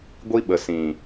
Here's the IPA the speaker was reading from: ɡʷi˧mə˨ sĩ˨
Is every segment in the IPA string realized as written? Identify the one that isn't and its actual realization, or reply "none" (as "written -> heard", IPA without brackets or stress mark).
m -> ɓ